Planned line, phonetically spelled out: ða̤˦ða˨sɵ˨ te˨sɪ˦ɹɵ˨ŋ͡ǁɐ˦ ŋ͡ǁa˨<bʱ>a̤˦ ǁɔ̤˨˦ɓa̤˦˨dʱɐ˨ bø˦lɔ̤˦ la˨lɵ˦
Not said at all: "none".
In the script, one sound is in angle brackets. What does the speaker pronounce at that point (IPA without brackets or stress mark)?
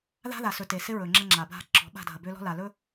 bʱ